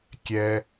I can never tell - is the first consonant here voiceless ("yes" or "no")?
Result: yes